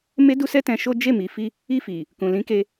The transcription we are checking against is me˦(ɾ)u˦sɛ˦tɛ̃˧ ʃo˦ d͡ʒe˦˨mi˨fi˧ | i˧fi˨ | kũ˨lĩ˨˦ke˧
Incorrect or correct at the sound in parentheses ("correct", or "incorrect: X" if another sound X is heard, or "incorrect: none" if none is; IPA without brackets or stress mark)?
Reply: incorrect: d